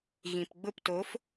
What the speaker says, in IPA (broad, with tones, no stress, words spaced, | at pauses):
ɣĩ˨pɡ͡bʊ˦˨p to˨˦f